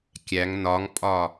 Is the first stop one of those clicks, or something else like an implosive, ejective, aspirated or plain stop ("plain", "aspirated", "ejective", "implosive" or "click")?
plain